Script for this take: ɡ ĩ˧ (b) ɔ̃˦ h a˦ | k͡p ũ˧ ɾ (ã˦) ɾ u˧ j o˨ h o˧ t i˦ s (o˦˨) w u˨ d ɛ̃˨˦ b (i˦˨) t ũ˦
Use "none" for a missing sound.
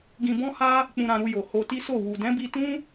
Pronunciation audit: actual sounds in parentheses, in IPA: b, ã˧, o˦˨, i˧

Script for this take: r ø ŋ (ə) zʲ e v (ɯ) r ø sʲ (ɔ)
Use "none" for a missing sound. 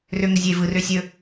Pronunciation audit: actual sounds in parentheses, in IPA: ə, ɯ, ɵ

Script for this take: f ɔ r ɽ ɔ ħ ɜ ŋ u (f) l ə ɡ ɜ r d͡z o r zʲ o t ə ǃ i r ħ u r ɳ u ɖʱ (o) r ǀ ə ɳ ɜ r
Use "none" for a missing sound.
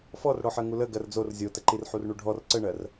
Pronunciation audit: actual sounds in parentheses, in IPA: none, ɔ

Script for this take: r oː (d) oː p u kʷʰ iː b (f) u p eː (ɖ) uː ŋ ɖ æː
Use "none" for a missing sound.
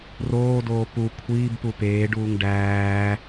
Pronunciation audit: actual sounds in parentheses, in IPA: d, p, ɖ

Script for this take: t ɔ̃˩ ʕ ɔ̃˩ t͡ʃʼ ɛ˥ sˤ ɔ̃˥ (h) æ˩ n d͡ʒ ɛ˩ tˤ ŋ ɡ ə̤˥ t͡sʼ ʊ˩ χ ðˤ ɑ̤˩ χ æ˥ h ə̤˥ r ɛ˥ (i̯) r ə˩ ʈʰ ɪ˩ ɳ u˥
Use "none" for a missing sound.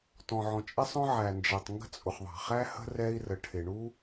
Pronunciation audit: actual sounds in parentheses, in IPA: ʕ, i̯

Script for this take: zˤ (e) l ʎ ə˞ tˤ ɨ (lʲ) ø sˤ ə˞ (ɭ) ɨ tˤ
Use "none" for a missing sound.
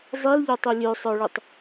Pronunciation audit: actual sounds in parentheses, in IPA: i, lʲ, ɭ

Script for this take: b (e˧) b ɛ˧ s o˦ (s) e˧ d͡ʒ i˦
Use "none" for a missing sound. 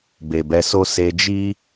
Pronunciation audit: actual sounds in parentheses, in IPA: e˨, s

